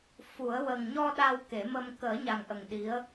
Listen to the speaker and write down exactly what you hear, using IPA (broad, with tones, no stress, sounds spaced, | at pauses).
f u˨˩˦ ə̯ w ə˨˩ ŋ ɲ ɔ˧ ɗ a˧ w k e˨˩˦ m ə˧ m k əː˨˩˦ ɲ a˨˩ ŋ ʔ ə˨˩ ŋ ɗ i˧˥ ə̯